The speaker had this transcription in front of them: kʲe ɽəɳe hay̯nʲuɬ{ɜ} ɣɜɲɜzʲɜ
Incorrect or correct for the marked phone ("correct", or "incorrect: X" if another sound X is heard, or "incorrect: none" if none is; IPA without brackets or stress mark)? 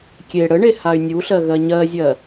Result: correct